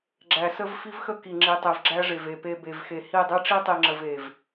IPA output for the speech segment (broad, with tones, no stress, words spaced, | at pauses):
ɡ͡ǁæ˨sə˦vfi˦vxə˦ ki˨ŋ͡ǁi˨tˤe˨v ɡ͡ǁæ˦ʐe˨ve˨ pe˨ be˨vxe˨ hi˦˨ dˤe˦ʈ͡ʂi˦tˤi˨ŋ͡ǁə˨v e˨v